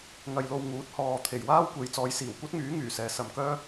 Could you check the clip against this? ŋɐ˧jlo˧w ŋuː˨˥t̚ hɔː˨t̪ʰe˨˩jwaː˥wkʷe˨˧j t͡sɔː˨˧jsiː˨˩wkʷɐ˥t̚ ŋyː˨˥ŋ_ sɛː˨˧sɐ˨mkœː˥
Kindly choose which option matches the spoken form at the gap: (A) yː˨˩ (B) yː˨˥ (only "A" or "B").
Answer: A